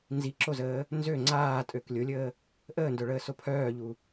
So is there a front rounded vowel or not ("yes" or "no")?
yes